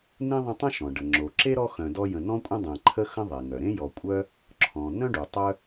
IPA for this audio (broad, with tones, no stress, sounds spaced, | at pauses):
n ẽ˥ ðˤ ə̃˦ tˤ ə̃˥ ʃ ɔ̃˩ ɖ ə˩ ŋ͡ǁ o˩ ǁ e˥ ɾ ɔ˦ x œ̃˨ d ɔ˦ j ə̃˨ n ɔ̃˥ kʷʼ ə̃˥ dˤ ẽ˨ ǃʰ ə˥ x ə̃˥ ðˤ e˩ ŋ œ˩ ɾ ẽ˥ j ɔ˨ kʷʼ œ˥ | ǁʰ ɔ̃˩ n œ̃˥ ɖ u˩ tˤ œ˥